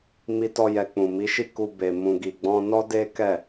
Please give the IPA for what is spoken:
mi˦tɔ˦jɛ˧ k͡pũ˨mi˨˦ ʃi˦˨ku˧ be˨ mũ˨ɡi˨ɡ͡bɔ̃˧nɔ˦ de˦kɛ˦˨

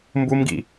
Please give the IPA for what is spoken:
mbumɡḭ

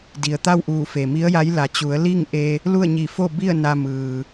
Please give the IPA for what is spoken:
di˩ə̯t̪a˥˨wʔuː˧˩ fe˩mi˧˥ə̯ja˧˥j la˩t͡ɕu˩˧ə̯ li˥˨ŋʔe˧ | lu˥˨ə̯ɲi˧˩fo˥˨bi˥˨ə̯ na˧mɯː˩

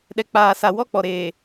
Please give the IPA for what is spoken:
ɗɛ˨k͡paː˨sa˨wɔ˦ k͡pɔ˨ɾeː˨

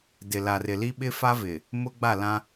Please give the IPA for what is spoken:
dɪ˨ la˨rɪ˨li˦ ɓɪ˦fa˦vɪ˨ | mʊ˦ɡ͡ba˦˨lã˦

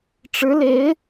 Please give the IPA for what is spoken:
ʈ͡ʂɻ̩˧˥le˧˥ɪ̯

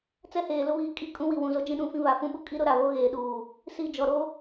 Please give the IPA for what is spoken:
t͡sɛ˦ heː˨lʊ˦βiː˨˦ kʼi˦ kʼũ˦wi˨ wũ˨zo˦ d͡ʒĩ˦ɗũ˦˨fĩ˦ βa˨fũ˦ɓu˦kʼi˦ ɾʊ˦ ɾa˨βo˦ɣeː˨ɗuː˨ | si˦˨ d͡ʒɔ˨ɾo˦

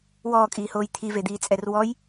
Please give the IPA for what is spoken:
wɔːkʼiːhoːj t̪ʰived̪iːt͡sʼɛr wɔj

